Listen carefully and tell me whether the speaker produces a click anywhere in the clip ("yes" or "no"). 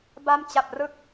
no